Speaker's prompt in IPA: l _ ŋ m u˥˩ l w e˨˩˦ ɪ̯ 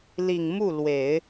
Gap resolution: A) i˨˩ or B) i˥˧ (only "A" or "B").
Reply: A